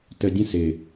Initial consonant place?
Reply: alveolar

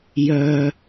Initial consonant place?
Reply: palatal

